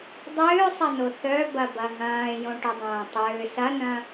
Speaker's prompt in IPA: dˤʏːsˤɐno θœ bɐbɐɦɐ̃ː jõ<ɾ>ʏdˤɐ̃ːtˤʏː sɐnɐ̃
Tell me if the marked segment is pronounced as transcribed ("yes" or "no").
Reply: no